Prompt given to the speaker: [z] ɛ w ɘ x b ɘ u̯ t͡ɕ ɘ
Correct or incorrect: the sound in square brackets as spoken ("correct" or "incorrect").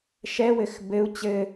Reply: incorrect